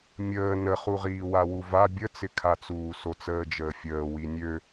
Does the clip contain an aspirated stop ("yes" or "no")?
yes